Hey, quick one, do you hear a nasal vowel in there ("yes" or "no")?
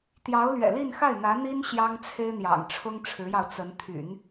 no